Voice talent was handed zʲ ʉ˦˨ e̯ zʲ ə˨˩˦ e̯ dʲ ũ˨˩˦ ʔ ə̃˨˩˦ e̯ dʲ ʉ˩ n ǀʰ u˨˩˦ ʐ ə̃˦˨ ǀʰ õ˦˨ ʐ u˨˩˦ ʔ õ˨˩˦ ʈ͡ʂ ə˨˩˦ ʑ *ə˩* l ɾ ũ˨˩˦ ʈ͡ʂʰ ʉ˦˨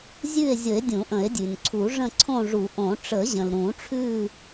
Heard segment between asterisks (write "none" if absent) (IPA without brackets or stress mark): ə̃˩